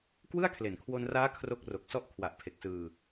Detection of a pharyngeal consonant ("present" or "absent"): absent